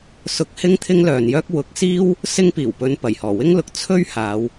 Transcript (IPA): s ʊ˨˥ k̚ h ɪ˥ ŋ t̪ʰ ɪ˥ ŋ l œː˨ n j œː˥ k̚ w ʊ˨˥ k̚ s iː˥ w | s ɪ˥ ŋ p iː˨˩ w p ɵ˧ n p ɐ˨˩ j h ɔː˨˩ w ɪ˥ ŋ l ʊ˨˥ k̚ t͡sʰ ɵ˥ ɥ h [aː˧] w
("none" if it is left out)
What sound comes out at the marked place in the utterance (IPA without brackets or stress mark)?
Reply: aː˨˧